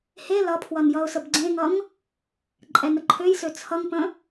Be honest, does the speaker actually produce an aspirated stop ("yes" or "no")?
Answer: yes